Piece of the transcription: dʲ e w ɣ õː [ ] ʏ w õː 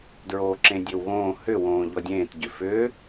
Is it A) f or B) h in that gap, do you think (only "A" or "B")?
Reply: B